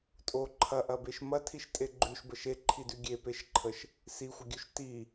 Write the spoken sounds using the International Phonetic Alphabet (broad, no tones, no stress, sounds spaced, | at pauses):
tʼ o ǃʰ ɐ ʔ ɐ b e ʃ m ɐ tʰ i ʃ tʼ e ɡ͡ǃ ʉ ʃ b ə ʃ e ǃʰ i d ʉ ɡʲ e p e ʃ ǃʰ ə ʃ | s i xʷ ə ɡʲ ʉ ʃ t i